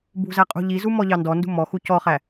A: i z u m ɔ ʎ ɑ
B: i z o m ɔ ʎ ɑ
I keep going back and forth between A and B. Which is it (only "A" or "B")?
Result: A